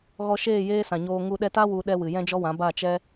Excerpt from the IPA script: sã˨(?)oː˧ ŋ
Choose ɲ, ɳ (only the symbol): ɲ